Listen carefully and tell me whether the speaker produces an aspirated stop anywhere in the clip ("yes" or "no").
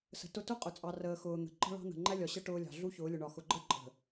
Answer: no